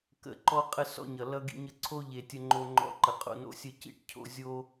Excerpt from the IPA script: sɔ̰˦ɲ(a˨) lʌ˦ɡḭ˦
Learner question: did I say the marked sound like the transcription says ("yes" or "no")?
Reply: no